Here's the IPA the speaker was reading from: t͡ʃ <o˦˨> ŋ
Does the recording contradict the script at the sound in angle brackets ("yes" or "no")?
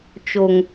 yes